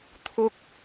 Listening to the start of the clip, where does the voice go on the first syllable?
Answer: high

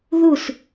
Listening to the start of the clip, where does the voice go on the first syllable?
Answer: falling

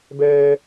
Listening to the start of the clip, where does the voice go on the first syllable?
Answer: high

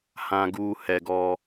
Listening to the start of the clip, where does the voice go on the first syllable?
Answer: low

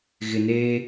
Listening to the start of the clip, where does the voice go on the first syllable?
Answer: low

